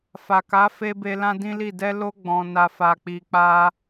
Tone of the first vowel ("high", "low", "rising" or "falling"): low